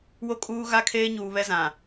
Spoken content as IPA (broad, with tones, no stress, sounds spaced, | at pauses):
w o˦ kʼ uː˦ ɣ a˦˨ kʰ eː˦ ɲ uː˨ β ɛ˦ z ã˨